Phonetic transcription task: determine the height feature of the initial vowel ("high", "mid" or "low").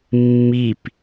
high